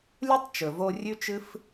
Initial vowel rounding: rounded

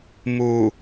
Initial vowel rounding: rounded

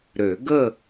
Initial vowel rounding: rounded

